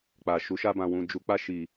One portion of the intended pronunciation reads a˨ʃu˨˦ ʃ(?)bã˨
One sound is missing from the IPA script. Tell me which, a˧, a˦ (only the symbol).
a˧